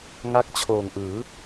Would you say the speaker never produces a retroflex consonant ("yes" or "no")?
yes